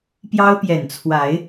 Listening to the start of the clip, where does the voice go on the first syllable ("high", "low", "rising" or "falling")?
high